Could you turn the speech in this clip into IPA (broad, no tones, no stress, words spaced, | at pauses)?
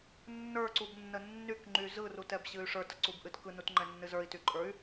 nːə˞ǀubnːə nːykŋ͡ǃy zɯrutɛbɕɨy̯ ʂə˞təǀubʔɨt kɯnutŋ͡ǃɛnːɨ zə˞i̯tyǃʼə˞y̯